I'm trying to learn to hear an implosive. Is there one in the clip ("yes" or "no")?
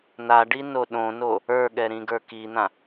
yes